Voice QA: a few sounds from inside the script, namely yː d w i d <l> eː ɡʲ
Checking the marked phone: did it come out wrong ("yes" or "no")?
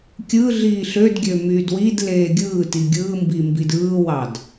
no